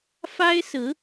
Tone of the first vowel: high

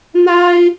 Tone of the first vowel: high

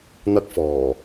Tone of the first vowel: high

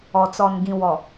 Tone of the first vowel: low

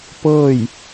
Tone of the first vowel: falling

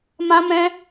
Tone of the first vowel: high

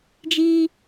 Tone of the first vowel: high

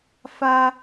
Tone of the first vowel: high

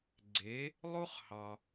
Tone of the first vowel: rising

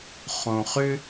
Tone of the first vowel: low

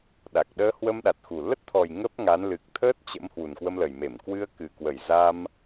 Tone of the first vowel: low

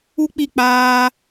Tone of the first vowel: high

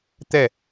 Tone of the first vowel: falling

